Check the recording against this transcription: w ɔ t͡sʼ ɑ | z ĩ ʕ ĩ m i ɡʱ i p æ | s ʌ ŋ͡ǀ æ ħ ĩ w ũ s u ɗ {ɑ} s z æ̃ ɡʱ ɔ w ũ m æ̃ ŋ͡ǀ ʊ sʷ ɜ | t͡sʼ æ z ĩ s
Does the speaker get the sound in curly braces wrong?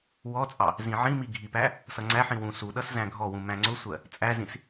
yes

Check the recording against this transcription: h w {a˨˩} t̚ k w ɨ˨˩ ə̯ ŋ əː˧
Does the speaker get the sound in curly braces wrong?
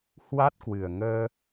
yes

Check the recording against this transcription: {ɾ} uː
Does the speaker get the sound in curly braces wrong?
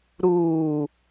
no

